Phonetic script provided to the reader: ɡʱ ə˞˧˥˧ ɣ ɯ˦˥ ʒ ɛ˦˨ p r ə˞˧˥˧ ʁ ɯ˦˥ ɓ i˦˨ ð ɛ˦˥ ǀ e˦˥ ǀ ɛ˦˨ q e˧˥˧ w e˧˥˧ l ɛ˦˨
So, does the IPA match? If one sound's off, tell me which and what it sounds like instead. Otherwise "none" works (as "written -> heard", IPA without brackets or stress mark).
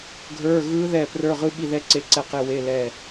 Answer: ʒ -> ð